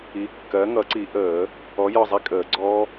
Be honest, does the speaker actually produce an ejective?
yes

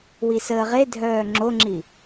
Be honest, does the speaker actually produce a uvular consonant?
yes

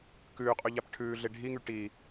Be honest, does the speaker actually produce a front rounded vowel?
yes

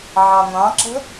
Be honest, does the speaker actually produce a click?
yes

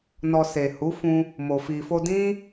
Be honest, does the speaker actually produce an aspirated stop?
no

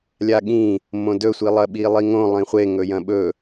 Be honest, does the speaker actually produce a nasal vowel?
yes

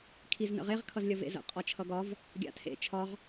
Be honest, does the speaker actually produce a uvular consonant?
yes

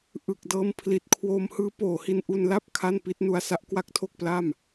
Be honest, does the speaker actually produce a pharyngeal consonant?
no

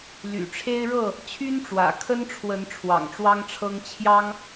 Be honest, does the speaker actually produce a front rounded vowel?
yes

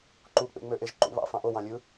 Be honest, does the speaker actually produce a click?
yes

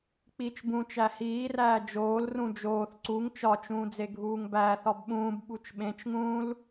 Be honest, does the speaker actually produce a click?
yes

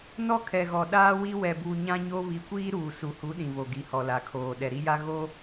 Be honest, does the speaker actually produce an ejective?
no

